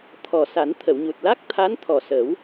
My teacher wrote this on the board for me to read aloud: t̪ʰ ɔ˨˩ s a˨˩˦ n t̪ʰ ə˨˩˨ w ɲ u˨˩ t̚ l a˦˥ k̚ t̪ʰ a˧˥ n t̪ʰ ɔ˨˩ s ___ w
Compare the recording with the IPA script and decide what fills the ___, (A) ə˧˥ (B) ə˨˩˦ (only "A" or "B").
B